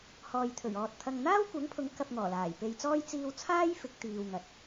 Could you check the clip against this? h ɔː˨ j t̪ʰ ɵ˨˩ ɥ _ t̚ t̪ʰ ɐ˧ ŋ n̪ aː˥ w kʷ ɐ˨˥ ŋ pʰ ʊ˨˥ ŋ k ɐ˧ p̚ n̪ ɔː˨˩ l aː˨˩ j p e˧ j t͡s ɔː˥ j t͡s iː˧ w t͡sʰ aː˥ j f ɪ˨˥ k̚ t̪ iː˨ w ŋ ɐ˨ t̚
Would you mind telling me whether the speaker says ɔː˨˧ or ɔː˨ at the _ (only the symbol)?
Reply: ɔː˨